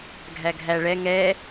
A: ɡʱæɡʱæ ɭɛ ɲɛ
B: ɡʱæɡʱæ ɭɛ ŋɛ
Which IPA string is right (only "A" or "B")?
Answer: B